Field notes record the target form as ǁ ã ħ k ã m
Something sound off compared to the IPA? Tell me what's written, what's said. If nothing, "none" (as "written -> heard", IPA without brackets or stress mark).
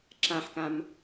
none